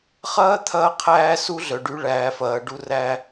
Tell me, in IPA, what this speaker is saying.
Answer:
χɐː˥t̪ʰɐː˦qʰæː˦ su˥ ɮœ˨ɖy˦ ɭæː˨fɐː˨ɖu˦ræ˦

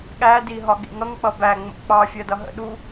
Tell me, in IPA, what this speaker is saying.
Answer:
ɠædi ɦɒɠḭŋʌŋk͡pʌ bæŋ͡mə̰ k͡pɑfʲɜ dʌɦə̰ɗu

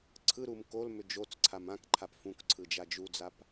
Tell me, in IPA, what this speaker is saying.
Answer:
ǀʰɯɾum kolmʏ d͡ʒot͡sǀʰam ãkǃʰap fũkǀʰɯd͡ʒa d͡ʒud͡zap

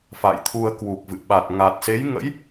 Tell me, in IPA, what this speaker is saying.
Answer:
fa̰˧˨jt̪ʰu˧ə̯ kwu˨˩k̚vɨ̰˧˨ ɓa˨˩t̚ŋa˨˩t̚ se˨˦jŋə̰˧˥j

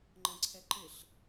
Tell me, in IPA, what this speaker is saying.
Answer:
ŋ͡ǃə̃ǀʰɛ ǃɪɬ

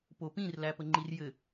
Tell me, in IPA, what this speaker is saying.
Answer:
popĩr læpəŋ͡ǃirjɘ

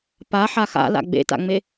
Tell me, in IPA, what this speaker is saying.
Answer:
pa ħaxa̰la̰ ɡ͡bḛta̰ŋ͡me

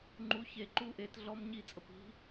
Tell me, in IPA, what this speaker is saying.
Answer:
ŋ͡ǃu çe ǃuʔet ɮɔmɲi t͡sʼəpi̤

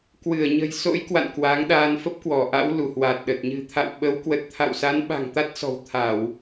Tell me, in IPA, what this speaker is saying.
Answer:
kwɨ˧˩ə̯ɲə̤˨˩jso̰˧˥j kwa̰˧˨nkwa˨˦ŋɗaː˧n fə˦˥p̚kwɔ˧˩ʔa̰˧˥w lu˧˩hwa˨˩t̚ɗə˨˩t̚ ɲɨ̤˨˩t̪ʰa̰˧˨w ɓə˨˦w kwə˨˩t̚t̪ʰa̰˧˨wsa˨˦n ɓa̤˨˩ŋt̪a˦˥t̚sɔ̤˨˩wt̪ʰa˧˩˨w

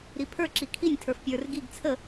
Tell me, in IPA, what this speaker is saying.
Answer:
ɾipʰə˞ ǁikʰinʲ tʰə˞fpʲə˞r ɡiɡ t͡sʰə

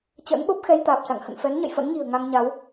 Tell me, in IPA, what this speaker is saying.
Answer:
t͡ɕə̰ː˧˥nɓo˦˥p̚ xɛ˧jt̪aː˨˩p̚sa̰˧˨ŋ hə̰˧˨nfɛ˨˦nɲə̰˧˨j fə̰˧˥nɲi̤˨˩ə̯ ŋa˧ŋɲa˨˦w

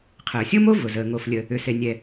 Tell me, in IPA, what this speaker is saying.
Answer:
qʰəː˩sʲo˥mo˥ vʊ˩zəː˩ ŋo˩flʲə˩ | ʏ˩se˩nʲɛ˩

